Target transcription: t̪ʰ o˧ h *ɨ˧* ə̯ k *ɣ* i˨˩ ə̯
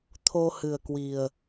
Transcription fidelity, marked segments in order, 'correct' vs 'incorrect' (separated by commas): incorrect, incorrect